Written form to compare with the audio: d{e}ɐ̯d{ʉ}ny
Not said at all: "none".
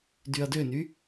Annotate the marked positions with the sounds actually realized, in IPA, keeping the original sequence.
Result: y, ø

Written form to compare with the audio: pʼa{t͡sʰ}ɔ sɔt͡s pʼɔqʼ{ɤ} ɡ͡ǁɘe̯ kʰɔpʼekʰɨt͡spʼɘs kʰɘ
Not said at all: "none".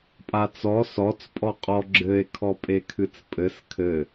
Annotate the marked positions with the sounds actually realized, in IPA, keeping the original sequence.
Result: t͡s, ɔ

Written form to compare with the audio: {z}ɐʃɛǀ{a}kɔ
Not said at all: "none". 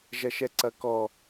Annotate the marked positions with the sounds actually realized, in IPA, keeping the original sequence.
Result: ʒ, ɐ

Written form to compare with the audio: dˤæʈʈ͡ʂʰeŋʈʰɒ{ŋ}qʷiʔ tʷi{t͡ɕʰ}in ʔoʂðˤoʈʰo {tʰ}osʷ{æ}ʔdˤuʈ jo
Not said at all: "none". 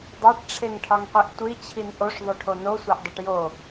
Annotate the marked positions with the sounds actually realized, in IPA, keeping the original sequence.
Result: ŋ, t͡ɕʰ, n, æ

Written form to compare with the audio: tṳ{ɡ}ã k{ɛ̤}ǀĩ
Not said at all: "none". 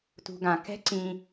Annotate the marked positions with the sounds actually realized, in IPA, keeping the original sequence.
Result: ɡ, ɛ̤

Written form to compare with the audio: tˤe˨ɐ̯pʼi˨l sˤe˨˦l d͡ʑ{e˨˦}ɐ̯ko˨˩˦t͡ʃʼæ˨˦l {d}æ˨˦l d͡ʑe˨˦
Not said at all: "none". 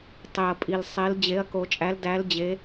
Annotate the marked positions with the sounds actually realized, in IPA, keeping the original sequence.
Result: e˨˦, d

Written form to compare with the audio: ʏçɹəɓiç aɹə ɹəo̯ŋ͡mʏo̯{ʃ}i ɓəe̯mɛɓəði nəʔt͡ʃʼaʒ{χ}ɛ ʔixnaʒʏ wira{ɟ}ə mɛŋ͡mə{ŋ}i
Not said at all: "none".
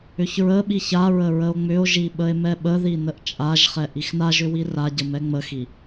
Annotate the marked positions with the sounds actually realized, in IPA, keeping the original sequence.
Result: ʒ, χ, ɟ, x

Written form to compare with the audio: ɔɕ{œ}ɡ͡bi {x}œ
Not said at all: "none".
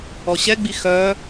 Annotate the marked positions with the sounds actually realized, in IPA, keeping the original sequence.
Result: ɛ, x

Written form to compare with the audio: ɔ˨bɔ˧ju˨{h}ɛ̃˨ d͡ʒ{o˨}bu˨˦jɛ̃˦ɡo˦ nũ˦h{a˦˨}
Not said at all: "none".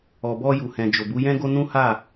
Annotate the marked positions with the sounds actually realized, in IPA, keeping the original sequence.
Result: h, o˨, a˦˨

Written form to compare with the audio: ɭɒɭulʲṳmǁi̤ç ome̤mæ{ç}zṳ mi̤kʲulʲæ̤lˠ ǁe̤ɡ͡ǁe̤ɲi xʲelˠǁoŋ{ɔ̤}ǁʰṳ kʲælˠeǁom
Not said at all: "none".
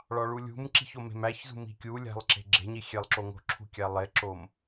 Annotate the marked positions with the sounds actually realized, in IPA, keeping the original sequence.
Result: ç, o̤

